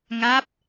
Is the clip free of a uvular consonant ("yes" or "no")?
yes